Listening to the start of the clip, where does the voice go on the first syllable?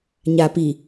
low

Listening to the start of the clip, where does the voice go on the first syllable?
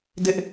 high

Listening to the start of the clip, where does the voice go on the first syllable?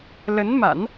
rising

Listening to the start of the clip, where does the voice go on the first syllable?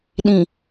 low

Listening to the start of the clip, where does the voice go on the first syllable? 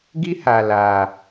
high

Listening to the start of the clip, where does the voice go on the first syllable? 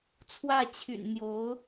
falling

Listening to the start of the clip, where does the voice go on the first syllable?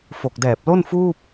low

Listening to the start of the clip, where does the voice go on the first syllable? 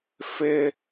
high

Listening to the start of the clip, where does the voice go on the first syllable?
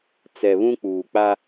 low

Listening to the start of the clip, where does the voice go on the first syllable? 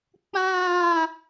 falling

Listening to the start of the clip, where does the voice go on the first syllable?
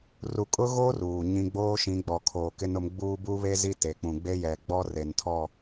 low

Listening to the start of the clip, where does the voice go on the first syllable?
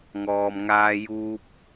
low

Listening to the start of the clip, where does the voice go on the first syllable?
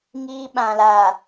high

